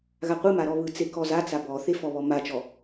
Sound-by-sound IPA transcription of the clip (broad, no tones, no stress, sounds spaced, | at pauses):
ɣ a qʷ ɯ m a ɾ ɔ β ɯ t͡s e k ɔ z a t͡s a b ɔ θ e f ɔ β ɔ m a t͡ʃ ɔ